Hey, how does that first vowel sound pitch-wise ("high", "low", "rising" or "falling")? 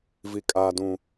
low